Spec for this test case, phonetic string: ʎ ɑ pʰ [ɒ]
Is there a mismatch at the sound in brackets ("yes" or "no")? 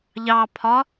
no